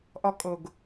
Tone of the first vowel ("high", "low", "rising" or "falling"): high